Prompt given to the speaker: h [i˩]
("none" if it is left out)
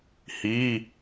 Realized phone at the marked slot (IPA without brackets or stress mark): i˧˥˧